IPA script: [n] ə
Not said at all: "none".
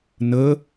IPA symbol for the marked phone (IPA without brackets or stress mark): n